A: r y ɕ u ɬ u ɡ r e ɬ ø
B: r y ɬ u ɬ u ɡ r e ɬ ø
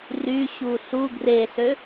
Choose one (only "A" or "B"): A